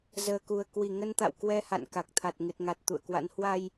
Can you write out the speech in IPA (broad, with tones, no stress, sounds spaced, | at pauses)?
z əː˨˩ k u˨˩ ə̯ k w i˧˩ ŋ ə˧ n t̪ a̰˧˨ w k w ɛ˧ h a̰˧˨ n k a˨˩ k̚ t̪ʰ a˨˩ t̚ ŋ ɨ˨˩ t̚ ŋ a˨˩ t̚ t̪ ṵ˧˨ ə̯ k w a̰˧˥ n h w a˧ j